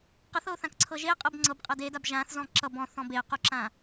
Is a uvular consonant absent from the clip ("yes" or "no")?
no